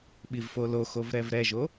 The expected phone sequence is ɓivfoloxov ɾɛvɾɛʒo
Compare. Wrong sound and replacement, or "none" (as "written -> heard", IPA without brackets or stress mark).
none